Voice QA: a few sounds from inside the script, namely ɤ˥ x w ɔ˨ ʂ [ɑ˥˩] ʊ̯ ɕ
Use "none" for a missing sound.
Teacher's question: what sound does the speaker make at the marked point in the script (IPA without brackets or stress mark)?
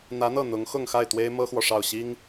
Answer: ɑ˥˩